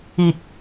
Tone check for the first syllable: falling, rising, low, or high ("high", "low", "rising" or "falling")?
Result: low